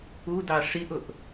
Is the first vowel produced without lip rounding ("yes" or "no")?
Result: no